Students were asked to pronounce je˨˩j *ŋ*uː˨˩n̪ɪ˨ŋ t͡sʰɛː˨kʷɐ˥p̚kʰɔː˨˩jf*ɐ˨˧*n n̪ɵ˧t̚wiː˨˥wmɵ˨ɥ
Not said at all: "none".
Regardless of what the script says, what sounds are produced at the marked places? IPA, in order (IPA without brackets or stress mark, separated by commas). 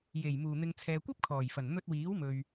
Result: m, ɐ˨˩